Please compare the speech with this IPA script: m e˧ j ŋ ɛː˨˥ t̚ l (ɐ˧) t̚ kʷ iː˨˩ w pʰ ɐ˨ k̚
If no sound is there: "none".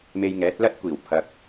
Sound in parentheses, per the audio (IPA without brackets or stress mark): ɐ˥